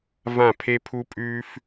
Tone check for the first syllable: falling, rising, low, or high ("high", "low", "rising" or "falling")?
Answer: falling